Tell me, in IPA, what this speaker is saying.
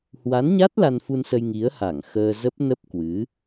h w a˨˦ n ɲ a˦˥ t̚ l a˧ n f u˧ n s ə˧ j ŋ i˨˦ ə̯ h a˧˩ ŋ x əː˧ z ə˦˥ p̚ n ə˦˥ p̚ k w ɨ˨˦

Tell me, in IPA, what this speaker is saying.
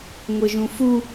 ŋʷ ɤ ʒ ũ f u

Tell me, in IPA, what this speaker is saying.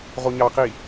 ʁ o ɲ ɑ q i

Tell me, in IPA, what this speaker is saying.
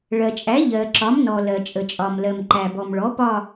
ɭ ɜ˩ t͡ʃʼ æ˩˥ ʎ ɜ˩ ǁ ɒ˩˥ m n ɔ˩ l ɜ˩ t͡ʃʼ ə˩ t͡ʃʼ ɒ˩ m l ɜ˩ m ǃ æ˩ b ɔ˩ m ɭ ɔ˩˥ p ɒ˦˨

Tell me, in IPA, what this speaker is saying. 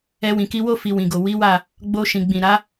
ɛ˧ w ĩ˨ k i˧ w o˦ f i˧ w ĩ˨ ɡ o˨ w i˨˦ w a˦˨ | ɡ͡b o˧ ʃ ĩ˨ ɡ͡b ĩ˨ ɾ a˨˦

